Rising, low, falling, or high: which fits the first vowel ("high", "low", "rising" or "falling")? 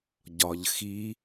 low